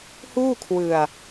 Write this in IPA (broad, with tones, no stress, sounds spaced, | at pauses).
h uː˥˩ kʰ w ɯ˧ a̯